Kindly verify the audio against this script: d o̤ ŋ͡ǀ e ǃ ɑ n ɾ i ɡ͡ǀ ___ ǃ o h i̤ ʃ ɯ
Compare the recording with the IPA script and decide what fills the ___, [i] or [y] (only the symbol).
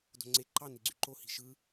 y